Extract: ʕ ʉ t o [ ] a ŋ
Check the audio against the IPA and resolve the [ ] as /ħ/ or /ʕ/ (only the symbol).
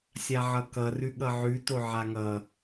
ʕ